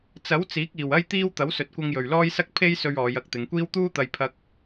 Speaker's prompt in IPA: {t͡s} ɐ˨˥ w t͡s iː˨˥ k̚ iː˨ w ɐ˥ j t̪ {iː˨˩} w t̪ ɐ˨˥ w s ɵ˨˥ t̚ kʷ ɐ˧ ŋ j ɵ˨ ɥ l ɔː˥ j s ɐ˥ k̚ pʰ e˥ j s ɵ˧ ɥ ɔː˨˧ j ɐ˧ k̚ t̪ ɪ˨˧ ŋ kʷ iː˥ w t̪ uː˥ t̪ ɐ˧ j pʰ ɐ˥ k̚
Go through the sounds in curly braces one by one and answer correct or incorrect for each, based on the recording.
correct, incorrect: iː˥

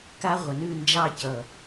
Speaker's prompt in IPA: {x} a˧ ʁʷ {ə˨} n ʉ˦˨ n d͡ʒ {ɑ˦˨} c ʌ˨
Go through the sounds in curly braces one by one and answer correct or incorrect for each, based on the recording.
incorrect: k, correct, correct

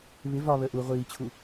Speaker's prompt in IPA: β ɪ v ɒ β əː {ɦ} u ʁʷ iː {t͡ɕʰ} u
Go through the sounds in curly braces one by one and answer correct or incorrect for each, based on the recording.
incorrect: ʔ, correct

